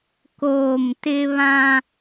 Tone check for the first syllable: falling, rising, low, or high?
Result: falling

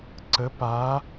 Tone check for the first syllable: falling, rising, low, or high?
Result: rising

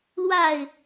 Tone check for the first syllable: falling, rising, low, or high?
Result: falling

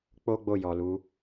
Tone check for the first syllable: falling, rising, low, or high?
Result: high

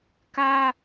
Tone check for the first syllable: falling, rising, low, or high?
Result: high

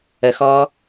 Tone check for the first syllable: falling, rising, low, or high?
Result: rising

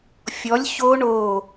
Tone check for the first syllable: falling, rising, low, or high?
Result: rising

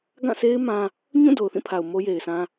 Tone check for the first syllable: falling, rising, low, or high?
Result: falling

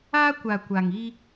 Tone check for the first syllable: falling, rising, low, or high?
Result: high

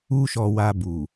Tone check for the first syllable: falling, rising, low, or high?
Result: high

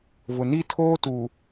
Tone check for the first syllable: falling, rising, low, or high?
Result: low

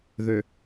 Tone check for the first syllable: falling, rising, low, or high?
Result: low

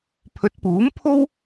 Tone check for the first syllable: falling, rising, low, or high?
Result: rising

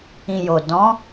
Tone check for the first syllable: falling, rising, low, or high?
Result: low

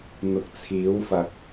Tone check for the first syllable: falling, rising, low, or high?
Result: low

